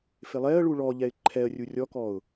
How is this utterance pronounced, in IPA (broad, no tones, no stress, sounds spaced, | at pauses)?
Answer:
f ɪ lˠ ɛ ə̯ ɭ u ɭ ɔ ʎ ɛ ɪ̯ ǃʰ ɛ ə̯ rʲ u rʲ ɔ k ɔ ʊ̯